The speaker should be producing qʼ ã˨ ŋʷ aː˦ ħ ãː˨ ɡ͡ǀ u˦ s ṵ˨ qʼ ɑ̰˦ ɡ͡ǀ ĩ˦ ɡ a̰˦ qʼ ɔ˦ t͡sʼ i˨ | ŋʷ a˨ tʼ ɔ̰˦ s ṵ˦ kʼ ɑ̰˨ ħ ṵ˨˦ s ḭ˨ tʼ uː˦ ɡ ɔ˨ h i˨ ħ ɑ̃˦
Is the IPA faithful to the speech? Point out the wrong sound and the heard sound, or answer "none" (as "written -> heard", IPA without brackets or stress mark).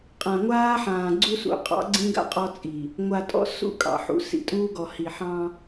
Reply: none